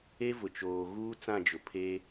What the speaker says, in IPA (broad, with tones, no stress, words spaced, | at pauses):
e˦vʊ˨t͡ʃoː˨ɣuː˦ t͡sã˦˨d͡ʒʊ˨pʰeː˦